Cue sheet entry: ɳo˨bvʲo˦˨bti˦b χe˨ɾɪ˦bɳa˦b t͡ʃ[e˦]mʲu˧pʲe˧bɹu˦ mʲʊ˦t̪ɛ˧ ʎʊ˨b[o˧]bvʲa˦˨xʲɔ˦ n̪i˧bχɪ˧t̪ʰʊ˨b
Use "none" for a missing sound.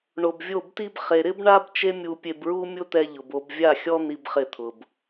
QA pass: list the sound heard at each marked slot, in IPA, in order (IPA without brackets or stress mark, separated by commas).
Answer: e˦, o˧